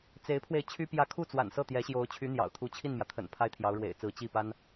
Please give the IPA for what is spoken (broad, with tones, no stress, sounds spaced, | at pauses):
t͡s e˧˥ ɪ̯ pʰ w e˧ ɪ̯ t͡ɕʰ y˥ p j ä˥˧ kʰ u˥˩ t͡s w a̰˨˩ n s ɤ˥˩ t̪ j ɛ˧˥ ɕ j o˧˥ ʊ̯ t͡ɕʰ y˧˥ n̪ j ɑ̰˨˩ ʊ̯ t̪ʰ u˧˥ t͡ɕʰ i˥˩ n m j ä˩ t̪ʰ ə̰˨˩ n pʰ a˥ ɪ̯ t̪ʰ j ɑ˧˥ ʊ̯ ɻ w ḛ˨˩ ɪ̯ t͡s ɹ̩˧˥ t͡ɕ i˥˩ p a˥ n